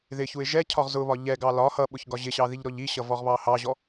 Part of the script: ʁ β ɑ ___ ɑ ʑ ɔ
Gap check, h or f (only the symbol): h